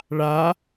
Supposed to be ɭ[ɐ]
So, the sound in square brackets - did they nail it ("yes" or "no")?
no